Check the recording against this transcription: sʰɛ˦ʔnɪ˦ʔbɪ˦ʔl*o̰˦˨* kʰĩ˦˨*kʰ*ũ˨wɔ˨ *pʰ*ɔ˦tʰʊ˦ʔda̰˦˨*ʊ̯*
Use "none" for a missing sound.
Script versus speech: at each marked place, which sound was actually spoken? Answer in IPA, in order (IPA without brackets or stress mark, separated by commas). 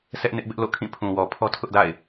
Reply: o̰˦˨, pʰ, pʰ, ɪ̯